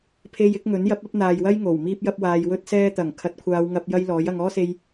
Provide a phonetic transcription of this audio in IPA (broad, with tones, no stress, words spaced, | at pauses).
pʰe˧j ɪ˨˥k̚ŋɵ˨˥njɐ˨˥p̚ ɐ˨˥p̚n̪aː˨jwɐ˥j ŋo˨˩w miː˥p̚jɐ˥p̚waː˧j wɵ˥t̚ sɛː˥t̪ɐ˨˩ŋ kʰɐ˨˥t̚kʷʰaː˨˧wŋɐ˧p̚ jɐ˥jlɔː˨˥j ɐ˨ŋ ɔː˥se˧j